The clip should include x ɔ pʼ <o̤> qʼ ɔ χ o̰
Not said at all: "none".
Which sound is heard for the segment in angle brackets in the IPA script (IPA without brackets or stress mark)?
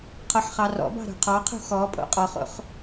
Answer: o̰